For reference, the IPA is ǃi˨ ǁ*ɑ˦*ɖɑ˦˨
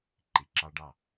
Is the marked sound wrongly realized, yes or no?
no